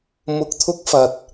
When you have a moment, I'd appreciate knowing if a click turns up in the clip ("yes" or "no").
no